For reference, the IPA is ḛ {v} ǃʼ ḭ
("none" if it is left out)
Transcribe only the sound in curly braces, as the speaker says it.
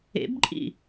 b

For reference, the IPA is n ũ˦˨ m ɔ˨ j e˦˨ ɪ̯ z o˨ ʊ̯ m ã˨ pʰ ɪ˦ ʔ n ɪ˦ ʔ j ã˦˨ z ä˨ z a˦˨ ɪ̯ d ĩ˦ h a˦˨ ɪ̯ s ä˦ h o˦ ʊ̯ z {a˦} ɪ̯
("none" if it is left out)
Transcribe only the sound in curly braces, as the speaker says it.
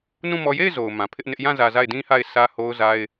a˦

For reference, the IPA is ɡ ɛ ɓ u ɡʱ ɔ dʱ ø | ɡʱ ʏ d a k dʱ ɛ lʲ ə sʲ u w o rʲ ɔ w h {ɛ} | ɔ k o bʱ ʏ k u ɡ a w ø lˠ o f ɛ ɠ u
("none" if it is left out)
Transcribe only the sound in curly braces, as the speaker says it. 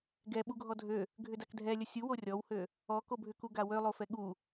ø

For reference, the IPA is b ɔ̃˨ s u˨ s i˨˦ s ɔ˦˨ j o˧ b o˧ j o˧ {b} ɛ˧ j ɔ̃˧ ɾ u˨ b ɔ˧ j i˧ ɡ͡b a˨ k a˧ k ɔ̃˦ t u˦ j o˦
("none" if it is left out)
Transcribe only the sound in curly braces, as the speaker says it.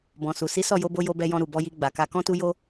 b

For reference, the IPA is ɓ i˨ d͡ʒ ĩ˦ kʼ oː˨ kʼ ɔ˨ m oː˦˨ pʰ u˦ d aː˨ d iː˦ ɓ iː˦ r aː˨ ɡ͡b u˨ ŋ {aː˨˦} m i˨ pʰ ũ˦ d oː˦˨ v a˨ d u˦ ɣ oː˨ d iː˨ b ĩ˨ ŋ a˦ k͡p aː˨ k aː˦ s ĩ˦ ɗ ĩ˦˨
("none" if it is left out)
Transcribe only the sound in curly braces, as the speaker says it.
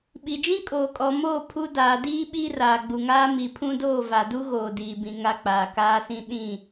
aː˦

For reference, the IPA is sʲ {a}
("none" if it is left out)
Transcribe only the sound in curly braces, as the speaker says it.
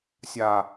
a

